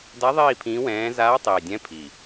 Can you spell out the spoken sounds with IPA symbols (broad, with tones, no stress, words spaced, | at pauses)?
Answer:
da˧˥ðˤiː˦˨ pʰĩː˧˥wɛ̃ː˧˥ zaː˧˥tˤiː˨˩dʲɛ̃˧˥ pʰi˨˩